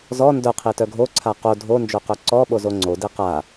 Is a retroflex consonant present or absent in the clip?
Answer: absent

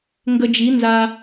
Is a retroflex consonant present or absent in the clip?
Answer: absent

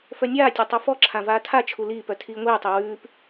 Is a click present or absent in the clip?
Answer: present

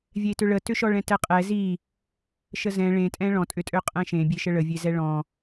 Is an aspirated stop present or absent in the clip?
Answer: absent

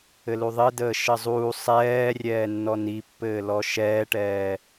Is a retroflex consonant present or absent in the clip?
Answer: present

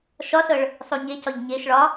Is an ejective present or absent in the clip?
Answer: absent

